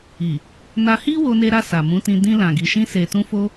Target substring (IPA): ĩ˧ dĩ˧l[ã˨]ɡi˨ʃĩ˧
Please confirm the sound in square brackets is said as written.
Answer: yes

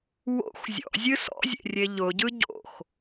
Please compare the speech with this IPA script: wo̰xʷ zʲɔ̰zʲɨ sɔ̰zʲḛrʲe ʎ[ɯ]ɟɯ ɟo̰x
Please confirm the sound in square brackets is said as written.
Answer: no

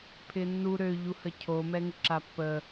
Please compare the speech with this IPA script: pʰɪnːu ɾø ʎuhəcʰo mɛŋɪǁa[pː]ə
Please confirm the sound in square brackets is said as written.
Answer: yes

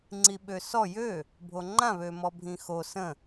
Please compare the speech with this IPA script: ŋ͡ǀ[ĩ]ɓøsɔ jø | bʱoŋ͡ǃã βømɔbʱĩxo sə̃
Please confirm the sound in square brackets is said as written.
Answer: no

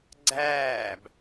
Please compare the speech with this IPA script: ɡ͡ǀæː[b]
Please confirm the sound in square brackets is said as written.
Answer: yes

